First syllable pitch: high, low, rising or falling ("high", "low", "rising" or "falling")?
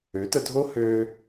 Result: rising